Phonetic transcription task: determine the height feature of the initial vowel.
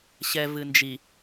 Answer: mid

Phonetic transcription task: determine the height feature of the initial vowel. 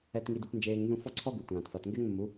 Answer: mid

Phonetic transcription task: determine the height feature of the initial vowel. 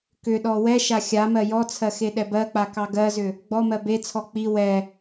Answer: high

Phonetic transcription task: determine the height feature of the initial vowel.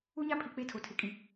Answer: high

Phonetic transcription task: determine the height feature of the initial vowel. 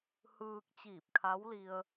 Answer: high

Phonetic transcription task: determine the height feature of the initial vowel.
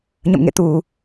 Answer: mid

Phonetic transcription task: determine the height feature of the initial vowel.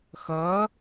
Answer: mid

